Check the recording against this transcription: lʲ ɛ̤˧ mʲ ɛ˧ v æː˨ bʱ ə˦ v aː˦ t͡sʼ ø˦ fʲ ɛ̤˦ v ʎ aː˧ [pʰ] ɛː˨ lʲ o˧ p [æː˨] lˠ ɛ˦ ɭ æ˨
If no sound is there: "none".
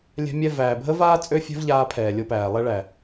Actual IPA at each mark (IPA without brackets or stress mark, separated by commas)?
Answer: pʰ, æː˨